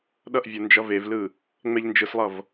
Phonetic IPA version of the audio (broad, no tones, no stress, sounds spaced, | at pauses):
ɗ ʌ ʔ vʲ o n d͡ʒ ʌ v e v l ɯ | ŋ͡m ɛ ʎ n d͡ʒ ɯ s lˠ ʌ v